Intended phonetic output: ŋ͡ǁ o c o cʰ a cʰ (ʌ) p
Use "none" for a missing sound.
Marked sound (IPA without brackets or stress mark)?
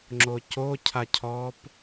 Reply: ɔ